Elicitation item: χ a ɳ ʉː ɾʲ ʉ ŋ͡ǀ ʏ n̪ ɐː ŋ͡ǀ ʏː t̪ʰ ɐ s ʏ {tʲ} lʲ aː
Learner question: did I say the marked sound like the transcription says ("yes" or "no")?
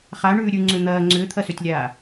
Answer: yes